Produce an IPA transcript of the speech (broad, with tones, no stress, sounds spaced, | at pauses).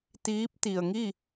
t̪ iː˧˥ p̚ t̪ i˩ ə̯ ŋ i˥˨